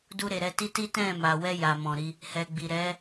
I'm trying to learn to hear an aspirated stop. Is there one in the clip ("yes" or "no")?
no